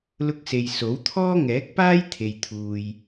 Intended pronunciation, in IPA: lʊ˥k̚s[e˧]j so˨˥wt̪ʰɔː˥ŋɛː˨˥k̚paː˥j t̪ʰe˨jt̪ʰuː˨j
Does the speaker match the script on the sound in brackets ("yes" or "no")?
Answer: yes